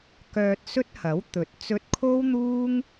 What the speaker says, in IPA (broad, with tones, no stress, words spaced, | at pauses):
kœː˧t̚sɵ˥t̚hɐ˨˥wt̪ɵ˨t̚ t͡sɵ˧t̚kʰo˥wn̪uː˥ŋ